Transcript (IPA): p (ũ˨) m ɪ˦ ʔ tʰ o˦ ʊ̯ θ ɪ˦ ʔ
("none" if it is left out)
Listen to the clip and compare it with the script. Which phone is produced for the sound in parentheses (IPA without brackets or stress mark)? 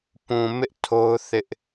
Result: ũ˨